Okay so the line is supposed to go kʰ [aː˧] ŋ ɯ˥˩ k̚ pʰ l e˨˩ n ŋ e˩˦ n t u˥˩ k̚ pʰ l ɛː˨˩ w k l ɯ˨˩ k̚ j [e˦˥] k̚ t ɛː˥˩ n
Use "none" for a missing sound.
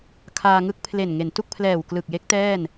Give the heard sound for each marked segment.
aː˧, e˦˥

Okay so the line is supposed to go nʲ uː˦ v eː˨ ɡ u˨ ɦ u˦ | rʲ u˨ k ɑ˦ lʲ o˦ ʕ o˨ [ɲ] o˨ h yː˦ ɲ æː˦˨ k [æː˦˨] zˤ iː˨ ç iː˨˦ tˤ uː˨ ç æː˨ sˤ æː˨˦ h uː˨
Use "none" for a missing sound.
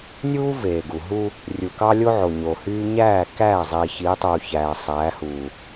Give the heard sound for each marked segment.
ɲ, æː˦˨

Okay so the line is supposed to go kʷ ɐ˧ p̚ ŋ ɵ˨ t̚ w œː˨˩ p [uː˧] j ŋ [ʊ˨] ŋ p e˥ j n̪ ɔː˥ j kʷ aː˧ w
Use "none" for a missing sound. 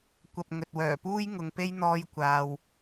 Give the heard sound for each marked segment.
uː˥, ʊ˨

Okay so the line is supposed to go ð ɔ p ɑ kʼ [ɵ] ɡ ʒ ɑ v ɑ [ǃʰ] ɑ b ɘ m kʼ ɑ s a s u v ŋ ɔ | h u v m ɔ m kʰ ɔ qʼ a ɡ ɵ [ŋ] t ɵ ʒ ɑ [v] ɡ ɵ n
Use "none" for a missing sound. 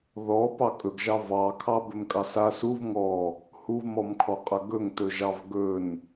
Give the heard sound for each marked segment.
ɵ, kʰ, ŋ, v

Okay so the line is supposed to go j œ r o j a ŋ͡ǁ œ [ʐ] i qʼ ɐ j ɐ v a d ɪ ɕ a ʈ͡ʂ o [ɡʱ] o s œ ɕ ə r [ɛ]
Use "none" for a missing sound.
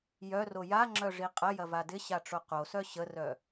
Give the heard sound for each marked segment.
ʐ, q, œ

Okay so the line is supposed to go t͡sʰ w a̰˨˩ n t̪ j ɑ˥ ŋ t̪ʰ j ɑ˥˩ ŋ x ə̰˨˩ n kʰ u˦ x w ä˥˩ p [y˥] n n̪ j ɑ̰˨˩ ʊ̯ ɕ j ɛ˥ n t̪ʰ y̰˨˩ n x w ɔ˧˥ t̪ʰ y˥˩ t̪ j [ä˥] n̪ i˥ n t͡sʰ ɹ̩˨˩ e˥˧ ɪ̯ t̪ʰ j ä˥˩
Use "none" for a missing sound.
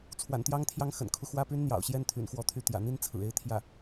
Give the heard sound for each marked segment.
y˥, ä̰˨˩

